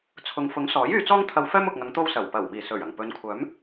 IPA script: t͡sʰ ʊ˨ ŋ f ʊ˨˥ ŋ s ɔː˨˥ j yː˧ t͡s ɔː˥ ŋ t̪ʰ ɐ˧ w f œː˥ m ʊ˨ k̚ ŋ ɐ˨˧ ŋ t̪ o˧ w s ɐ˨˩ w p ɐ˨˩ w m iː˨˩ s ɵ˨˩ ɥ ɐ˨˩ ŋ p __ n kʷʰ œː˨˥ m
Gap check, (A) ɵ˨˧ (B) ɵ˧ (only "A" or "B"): A